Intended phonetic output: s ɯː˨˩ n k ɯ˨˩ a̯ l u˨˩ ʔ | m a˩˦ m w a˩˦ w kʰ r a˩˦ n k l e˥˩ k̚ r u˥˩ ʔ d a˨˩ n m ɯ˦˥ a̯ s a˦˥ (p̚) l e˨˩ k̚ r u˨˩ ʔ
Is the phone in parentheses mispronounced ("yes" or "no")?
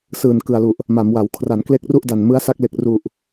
yes